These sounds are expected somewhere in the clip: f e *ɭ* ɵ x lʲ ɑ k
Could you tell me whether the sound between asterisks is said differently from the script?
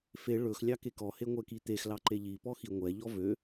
no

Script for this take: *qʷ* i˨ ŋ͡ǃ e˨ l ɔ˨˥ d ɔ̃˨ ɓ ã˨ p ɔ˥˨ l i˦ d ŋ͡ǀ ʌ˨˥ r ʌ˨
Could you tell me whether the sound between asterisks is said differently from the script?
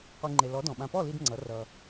no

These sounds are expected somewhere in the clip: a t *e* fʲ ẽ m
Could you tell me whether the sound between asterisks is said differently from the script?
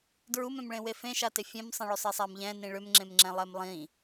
no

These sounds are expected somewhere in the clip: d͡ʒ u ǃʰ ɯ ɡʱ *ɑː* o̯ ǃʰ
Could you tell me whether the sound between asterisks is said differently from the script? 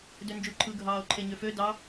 no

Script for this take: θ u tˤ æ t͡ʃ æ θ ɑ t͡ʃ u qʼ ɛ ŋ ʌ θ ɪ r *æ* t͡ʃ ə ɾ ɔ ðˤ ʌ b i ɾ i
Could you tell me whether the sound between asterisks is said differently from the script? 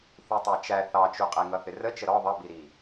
yes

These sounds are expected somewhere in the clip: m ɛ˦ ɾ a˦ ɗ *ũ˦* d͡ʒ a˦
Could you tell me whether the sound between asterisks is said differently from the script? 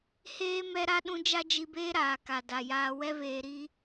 no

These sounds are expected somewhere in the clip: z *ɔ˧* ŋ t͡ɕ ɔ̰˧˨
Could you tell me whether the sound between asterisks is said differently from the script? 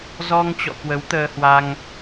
no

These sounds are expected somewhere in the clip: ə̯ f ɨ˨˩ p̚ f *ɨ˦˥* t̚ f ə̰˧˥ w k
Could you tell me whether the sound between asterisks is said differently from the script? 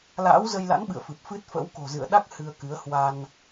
no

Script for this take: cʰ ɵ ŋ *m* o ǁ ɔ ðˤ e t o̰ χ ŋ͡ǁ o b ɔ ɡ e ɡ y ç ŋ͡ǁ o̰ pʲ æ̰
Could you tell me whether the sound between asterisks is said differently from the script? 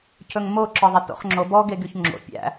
no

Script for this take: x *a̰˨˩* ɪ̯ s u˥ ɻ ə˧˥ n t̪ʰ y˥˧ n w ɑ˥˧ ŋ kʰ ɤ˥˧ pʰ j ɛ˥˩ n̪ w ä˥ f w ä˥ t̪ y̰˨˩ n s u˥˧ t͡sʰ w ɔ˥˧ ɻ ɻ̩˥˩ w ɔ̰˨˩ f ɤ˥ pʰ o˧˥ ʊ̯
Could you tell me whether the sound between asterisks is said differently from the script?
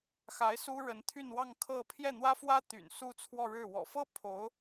yes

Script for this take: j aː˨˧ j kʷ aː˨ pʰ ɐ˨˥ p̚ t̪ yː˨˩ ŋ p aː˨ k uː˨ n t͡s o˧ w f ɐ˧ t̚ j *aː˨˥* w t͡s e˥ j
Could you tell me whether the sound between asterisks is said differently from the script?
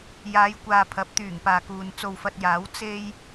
no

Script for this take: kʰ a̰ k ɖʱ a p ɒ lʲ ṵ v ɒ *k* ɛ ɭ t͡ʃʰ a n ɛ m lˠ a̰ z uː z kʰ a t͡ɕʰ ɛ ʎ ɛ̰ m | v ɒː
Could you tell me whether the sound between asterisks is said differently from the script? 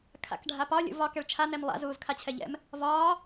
no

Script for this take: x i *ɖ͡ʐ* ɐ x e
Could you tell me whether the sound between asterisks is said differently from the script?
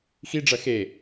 no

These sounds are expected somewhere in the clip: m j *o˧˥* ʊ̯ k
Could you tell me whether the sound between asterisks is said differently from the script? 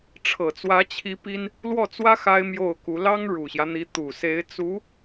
yes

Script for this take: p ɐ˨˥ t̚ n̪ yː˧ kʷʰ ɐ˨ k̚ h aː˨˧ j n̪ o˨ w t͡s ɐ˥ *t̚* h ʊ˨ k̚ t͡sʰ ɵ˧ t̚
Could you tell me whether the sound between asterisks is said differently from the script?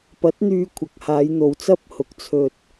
yes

